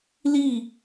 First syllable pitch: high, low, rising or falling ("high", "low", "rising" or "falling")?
falling